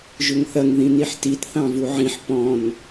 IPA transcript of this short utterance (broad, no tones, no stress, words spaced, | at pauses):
ʒʏŋθɐŋ ðĩniħtit θɑ̃vuʕĩħ pɔ̃n